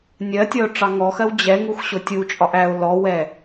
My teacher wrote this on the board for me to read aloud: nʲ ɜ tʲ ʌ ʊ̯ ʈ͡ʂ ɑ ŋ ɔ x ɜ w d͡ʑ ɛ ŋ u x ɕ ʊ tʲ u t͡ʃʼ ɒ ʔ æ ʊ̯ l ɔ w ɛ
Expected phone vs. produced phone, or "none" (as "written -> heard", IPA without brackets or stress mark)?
none